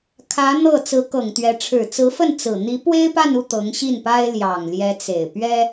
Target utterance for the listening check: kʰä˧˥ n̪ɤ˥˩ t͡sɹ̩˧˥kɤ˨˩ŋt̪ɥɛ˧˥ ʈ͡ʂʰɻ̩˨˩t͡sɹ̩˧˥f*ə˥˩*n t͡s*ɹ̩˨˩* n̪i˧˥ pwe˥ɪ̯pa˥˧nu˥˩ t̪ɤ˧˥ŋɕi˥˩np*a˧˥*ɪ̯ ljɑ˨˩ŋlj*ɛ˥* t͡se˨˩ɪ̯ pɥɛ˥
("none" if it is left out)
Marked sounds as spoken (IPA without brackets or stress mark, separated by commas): ə˥˩, ɹ̩˨˩, a˥, ɛ˧˥